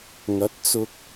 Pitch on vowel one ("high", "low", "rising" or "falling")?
rising